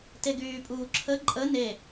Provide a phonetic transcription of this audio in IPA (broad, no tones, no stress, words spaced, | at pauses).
teɡyːpʼuːǁʰə ǃʼə ne